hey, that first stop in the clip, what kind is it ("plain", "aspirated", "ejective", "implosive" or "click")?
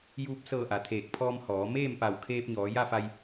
plain